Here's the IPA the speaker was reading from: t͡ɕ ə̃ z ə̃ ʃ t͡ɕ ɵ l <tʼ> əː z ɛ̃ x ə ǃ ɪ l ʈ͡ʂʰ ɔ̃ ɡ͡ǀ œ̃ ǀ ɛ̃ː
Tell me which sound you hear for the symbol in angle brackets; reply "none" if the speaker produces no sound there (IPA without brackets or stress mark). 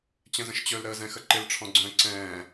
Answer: ɾ